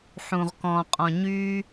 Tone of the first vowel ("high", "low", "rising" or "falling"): low